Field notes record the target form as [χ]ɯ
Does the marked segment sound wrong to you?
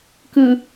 yes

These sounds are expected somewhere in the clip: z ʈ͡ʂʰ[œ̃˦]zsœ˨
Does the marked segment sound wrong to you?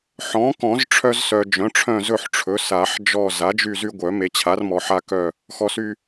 yes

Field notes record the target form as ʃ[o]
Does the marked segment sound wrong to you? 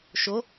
no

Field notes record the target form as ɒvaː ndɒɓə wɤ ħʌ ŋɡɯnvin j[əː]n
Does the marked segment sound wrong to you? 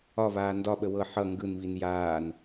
yes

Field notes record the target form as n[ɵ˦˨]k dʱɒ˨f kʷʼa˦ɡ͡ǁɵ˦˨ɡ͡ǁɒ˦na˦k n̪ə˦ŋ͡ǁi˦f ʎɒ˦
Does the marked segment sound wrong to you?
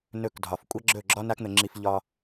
no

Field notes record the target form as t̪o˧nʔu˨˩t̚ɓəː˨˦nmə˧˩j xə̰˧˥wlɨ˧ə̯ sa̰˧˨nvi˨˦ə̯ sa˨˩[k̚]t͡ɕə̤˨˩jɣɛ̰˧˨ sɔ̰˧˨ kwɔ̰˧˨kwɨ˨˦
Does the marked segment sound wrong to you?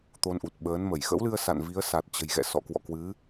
yes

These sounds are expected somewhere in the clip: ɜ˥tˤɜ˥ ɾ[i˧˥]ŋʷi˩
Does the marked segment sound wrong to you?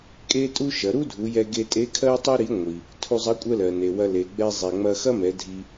no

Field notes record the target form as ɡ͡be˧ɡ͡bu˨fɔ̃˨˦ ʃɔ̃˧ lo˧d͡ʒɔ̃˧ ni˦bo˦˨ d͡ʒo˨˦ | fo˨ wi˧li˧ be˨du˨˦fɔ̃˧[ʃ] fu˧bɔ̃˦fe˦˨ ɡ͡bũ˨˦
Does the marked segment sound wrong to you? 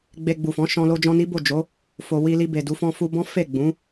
yes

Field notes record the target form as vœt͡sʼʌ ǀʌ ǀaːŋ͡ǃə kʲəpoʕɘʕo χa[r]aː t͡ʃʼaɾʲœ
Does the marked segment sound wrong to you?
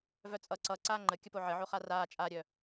no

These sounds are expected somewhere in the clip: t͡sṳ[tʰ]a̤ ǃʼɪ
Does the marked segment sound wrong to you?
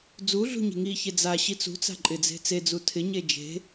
yes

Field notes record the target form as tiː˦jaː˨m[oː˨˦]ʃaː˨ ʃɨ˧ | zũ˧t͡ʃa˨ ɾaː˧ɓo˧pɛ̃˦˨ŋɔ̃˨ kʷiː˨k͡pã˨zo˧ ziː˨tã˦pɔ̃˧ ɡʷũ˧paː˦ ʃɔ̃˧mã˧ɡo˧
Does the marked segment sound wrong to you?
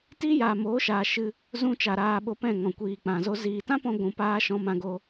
no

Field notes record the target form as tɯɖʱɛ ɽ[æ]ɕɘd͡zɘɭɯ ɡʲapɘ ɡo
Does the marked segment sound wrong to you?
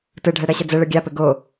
yes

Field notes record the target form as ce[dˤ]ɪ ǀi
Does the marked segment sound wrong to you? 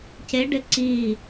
yes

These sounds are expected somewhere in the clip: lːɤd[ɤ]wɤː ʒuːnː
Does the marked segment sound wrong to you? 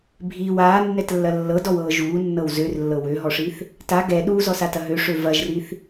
yes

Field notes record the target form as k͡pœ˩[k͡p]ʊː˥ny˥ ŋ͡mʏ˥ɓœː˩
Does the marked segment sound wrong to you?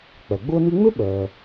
yes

